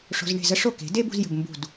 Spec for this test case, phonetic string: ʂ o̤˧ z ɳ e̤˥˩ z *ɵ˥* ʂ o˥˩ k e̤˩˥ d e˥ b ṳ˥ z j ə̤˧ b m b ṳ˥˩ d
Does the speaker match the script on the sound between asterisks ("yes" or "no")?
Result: no